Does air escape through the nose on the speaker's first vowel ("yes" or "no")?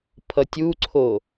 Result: no